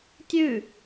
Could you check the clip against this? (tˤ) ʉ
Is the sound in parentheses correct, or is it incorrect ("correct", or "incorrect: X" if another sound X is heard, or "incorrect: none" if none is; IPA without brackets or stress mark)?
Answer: incorrect: tʲ